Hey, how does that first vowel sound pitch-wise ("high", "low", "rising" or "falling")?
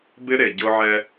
high